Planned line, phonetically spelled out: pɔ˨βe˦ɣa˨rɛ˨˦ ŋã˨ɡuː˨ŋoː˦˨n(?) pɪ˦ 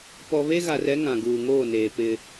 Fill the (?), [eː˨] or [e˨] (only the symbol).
eː˨